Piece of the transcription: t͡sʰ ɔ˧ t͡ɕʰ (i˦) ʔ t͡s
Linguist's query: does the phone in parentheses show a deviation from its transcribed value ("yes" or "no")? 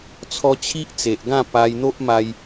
no